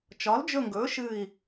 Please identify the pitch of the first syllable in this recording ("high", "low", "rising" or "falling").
rising